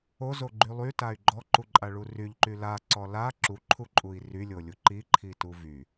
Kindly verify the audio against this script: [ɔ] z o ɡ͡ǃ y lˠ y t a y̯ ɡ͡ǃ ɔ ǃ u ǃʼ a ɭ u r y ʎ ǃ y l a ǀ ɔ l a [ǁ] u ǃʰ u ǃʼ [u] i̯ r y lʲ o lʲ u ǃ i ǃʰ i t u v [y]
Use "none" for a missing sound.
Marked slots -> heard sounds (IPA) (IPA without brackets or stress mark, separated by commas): o, ǁ, u, y